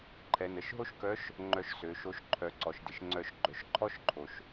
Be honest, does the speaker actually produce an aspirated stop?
yes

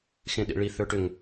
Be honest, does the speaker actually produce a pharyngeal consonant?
no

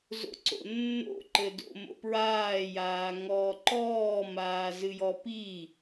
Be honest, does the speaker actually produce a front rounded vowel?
no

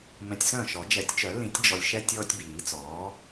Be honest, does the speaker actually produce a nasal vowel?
yes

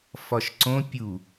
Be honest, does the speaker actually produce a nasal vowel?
yes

